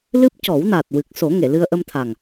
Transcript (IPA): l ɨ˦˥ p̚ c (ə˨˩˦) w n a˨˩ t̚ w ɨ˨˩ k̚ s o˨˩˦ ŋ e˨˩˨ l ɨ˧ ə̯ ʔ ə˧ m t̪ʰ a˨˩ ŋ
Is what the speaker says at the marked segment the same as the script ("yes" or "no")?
no